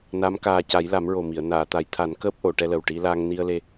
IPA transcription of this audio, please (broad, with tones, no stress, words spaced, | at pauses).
na˧˥m kaː˧ ca˨˩˦jla˨˩˦mɹo˨˩mi˨˩˨ə̯ naː˨˩˨t̪a˨˩˦jt̪ʰa˨˩˦n kəː˦˥p̚ʔo˨˩˨ʈɛ˧lə˨˩w ʈi˧la˧ŋ ni˧ə̯le˧